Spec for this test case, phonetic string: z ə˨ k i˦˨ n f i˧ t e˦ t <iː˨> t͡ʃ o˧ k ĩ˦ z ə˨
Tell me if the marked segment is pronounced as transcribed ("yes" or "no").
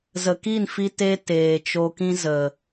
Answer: no